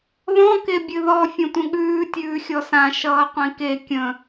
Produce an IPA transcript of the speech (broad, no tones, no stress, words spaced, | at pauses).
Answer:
ðɔ̃ kebʲɨðɔ fʲə̃tʷə̃ɠʉː tʲʉːxʲɔsã ʃʌːqʷĩke kʲə̃